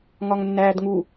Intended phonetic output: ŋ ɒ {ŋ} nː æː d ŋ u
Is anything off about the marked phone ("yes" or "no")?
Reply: no